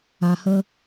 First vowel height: low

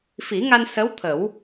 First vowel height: high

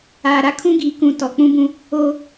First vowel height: low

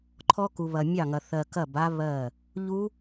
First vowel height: mid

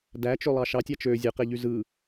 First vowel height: low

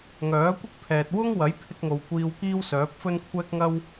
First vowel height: mid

